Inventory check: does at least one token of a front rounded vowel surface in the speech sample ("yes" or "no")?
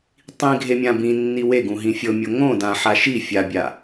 no